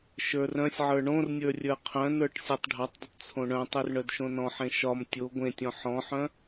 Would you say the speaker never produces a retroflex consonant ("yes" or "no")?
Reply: no